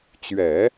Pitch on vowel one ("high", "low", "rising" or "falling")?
low